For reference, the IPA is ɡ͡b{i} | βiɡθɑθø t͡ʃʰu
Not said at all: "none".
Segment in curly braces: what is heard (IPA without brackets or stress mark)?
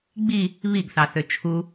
i